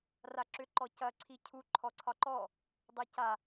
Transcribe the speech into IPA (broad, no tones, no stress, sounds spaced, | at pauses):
r a ǁ ʏ ǃ ɔ c ɐ ǀʰ i cʰ u ǃʰ ɔ ǀʰ ɒ ǃ ɔ | dˤ e c a